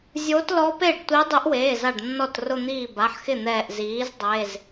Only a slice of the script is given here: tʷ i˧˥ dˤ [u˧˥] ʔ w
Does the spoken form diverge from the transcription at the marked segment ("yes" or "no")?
no